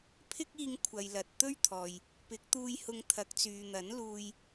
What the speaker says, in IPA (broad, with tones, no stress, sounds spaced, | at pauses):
pʰ ɪ˥ k̚ iː˧ ŋ kʷʰ ɐ˨ j l ɐ˨ t̚ t̪ ɵ˥ ɥ t̪ʰ ɔː˨ j | p ɪ˨˥ k̚ t̪ uː˧ j h ʊ˧ ŋ t̪ʰ ɐ˨˥ k̚ t͡s yː˨ n̪ ɐ˨˥ n l uː˧ j